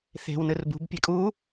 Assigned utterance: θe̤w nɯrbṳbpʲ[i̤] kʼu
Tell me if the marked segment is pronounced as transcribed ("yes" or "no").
no